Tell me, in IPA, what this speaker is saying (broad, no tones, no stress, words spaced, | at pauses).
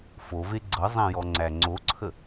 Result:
fove ɡ͡ǀɤzˤæ̃jɔŋ͡ǀæ ŋ͡ǀoǀʰə